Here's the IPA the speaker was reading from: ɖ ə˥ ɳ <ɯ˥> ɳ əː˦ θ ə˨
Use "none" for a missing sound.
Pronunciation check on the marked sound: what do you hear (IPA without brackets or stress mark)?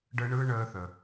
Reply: ɯ˥